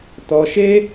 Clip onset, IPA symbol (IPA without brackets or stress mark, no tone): t